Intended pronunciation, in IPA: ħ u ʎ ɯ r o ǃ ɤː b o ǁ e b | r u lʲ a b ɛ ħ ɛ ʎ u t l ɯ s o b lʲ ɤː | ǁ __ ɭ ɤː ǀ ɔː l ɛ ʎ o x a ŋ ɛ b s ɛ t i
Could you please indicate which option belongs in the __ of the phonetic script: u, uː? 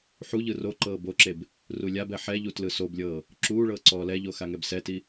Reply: uː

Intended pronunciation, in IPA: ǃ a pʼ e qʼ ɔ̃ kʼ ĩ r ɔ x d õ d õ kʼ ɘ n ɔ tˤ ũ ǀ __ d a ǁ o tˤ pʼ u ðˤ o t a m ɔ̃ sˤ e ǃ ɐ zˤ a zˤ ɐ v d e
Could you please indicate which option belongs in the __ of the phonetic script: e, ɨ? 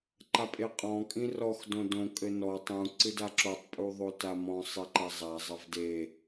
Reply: ɨ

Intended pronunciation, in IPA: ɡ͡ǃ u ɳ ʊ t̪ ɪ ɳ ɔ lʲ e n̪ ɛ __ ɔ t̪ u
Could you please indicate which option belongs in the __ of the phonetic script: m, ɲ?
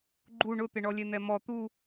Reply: m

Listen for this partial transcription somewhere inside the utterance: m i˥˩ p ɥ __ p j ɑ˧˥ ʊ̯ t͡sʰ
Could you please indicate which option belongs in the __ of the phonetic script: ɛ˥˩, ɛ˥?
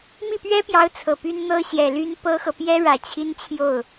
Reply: ɛ˥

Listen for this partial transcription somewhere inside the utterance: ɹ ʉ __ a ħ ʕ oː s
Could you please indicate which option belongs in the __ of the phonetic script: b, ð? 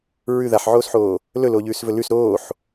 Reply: ð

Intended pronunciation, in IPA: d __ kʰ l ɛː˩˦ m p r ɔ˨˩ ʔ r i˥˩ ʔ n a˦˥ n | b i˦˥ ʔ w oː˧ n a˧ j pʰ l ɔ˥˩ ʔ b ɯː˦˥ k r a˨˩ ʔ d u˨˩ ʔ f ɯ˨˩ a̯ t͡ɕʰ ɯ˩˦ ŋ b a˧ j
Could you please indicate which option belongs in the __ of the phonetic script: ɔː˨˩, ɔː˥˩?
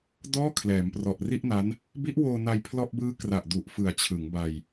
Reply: ɔː˥˩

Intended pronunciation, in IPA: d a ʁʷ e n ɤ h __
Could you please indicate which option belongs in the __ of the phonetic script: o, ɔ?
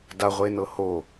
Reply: o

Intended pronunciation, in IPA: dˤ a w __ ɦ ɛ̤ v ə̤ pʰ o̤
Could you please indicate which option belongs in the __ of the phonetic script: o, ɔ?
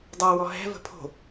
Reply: ɔ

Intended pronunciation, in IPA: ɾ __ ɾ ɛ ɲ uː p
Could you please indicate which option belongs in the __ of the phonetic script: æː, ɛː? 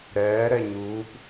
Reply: ɛː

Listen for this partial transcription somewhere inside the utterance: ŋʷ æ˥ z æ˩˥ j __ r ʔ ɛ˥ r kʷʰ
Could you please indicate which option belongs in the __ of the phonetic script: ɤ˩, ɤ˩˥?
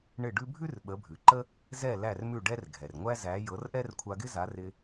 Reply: ɤ˩˥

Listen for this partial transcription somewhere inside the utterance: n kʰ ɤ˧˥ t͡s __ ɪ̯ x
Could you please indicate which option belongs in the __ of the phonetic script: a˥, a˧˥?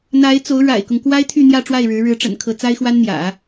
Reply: a˥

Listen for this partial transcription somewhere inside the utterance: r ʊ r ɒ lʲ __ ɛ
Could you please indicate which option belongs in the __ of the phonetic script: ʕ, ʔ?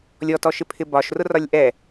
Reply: ʔ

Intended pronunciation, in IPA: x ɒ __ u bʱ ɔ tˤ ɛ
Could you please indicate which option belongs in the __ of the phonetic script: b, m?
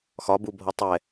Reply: b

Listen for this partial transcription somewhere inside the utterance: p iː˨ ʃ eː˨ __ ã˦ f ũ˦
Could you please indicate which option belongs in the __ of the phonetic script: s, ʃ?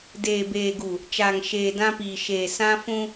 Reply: s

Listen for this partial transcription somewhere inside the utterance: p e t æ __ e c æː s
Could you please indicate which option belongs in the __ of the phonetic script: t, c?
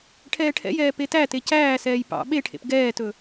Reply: t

